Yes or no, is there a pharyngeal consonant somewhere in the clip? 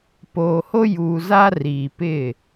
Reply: no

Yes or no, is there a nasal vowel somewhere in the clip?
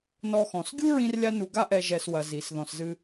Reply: yes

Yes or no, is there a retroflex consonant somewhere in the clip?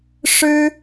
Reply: yes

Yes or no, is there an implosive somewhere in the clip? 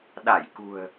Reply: yes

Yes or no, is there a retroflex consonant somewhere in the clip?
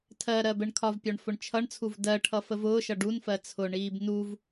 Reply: yes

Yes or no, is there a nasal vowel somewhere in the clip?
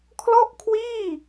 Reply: no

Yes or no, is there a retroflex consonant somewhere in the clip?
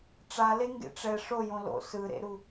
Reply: yes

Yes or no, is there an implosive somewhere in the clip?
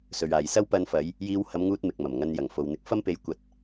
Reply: no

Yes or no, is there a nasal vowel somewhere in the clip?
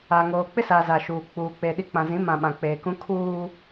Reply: yes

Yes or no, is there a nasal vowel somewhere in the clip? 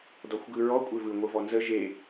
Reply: no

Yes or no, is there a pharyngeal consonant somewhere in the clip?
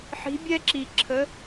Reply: yes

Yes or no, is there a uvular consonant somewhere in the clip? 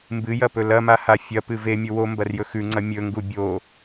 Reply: no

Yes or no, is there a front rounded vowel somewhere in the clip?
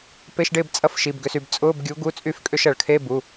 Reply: yes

